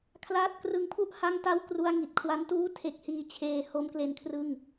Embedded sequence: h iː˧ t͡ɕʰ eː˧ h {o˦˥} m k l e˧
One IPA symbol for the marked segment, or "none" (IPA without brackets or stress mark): o˦˥